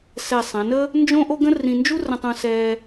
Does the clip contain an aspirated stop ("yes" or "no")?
no